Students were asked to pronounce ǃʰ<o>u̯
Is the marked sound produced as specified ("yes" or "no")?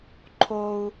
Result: yes